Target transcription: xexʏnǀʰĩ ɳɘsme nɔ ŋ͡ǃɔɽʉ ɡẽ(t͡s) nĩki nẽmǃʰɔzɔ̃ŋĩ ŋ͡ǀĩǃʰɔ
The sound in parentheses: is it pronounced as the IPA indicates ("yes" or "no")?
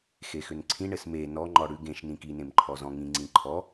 no